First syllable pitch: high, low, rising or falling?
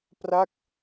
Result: falling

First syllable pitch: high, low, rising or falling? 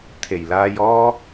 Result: low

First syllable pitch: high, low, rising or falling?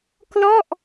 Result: falling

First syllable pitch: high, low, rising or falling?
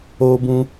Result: high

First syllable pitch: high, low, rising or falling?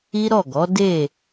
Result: high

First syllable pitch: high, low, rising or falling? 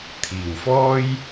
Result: low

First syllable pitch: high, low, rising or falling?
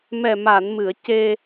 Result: low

